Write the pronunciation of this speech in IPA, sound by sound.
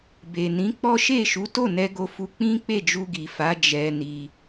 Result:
b e˨ n ĩ˨˦ k͡p ɔ˦ ʃ e˦˨ ʃ u˨˦ t o˦˨ n ɛ˧ ɡ o˧ f u˧ k͡p ĩ˦ k͡p e˦˨ d͡ʒ u˧ ɡ i˨ f a˨˦ d͡ʒ ɛ˧ n i˧

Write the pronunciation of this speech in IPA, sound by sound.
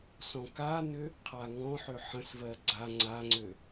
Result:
s ɔ̃ k a n ʏ | qʰ a ŋ ɔ̃ ħ ø ħ ə̃ s v ɜ ɡ͡ǀ a ŋ͡ǀ a ŋ͡ǀ ø

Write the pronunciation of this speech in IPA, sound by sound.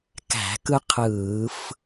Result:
k æ̤˧˩˧ k ɯ˦ qʰ ɯː˧˩˧ f

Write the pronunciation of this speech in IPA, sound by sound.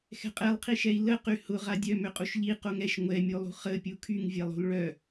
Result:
x ɛ̤ qʼ ɛ lˠ qʰ i ʃ ɛ i̯ l ə q y h ʊ ʁ a dʲ œ m ʏ qʼ u ʃ ʎ i q o ŋ ɛ ʃ ŋʷ ɛ mʲ o lˠ ṳ χ ə pʲ u kʰ y ŋ vʲ ɛ lˠ o̤ l ɭ œ

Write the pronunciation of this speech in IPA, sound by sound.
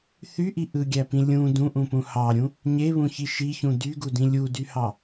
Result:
θ y ʔ i ʔ ɯ ɡʲ æ p ĩ lʲ ũ d ũ ʔ ũ p ũ h ɑ ɾʲ ũ | ɲ e β ũ ç i ʃ i ç ũ d y ɡ u d ĩ lʲ u d y h ɑ

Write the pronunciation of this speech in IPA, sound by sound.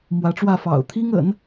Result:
m w ä˧˥ ʈ͡ʂ w ä˥˩ f ɑ̰˨˩ ʊ̯ t̪ʰ i˥ ŋ ə̰˨˩˦ n

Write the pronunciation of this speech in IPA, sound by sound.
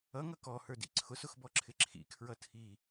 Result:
ʌ ŋ ʌ k ɔ h ə˞ d ḭ ǀʰ ʊ s ʊ x b ɔ ǁʰ ɪ ǁʰ ḭ kʰ ɹ ʌ tʰ i

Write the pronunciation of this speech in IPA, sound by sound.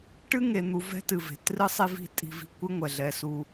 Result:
ʈ ɨ˥ ŋ e˨ n̪ u˨ v ɛ̤˥ t ɨ˩ v e̤˩ t r ɨ˥ sˤ i˦ v i̤˦ tʼ i̤˨ v i̤˨ kʷ ɨ˥ ŋʷ ɛ˩ ɮ ɛ˨ s u˨

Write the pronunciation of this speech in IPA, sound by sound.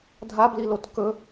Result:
dʱ a b l i l o t k ɵ

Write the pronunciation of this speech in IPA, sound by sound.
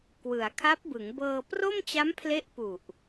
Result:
k w ɯ˩˦ a̯ kʰ a˦˥ p̚ b ɯ˩˦ ŋ b ɤː˧ p r o˥˩ m t͡ɕ a˦˥ m pʰ l e˦˥ ʔ p u˨˩ ʔ

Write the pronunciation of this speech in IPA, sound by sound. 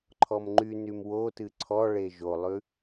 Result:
ǃʰ ɔ m ŋ͡ǃ y n y m w o t ɨ ǀʰ ɔ ɭ e ʒ o lˠ ʉ

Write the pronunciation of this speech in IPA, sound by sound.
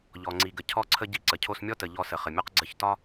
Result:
ʎ ɔ˩ ŋ͡ǀ i˩ ɡ ə˩ cʰ ɔ˧ ǀʰ ə˧ ɟ i˧ ǀ ə˩ cʰ o˧ s mʲ ɔ˥ t ə˩ ʎ ɔ˧ s ə˩ χ ə˩ mʲ ɔ˥ q ɡ͡ǀ ə˧ ç t ɒ˥

